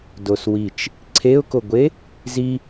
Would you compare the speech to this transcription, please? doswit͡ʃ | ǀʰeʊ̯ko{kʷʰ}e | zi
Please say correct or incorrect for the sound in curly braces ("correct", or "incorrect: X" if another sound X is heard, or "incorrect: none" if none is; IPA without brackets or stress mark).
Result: incorrect: ɡʷ